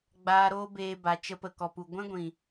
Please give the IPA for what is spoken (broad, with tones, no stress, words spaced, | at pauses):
ɡ͡baː˧ ɾoː˦beː˧ba˨ t͡ʃə˧pə˨kɔ˨pu˨ ɡʷɛ̃˦ɡʷĩ˨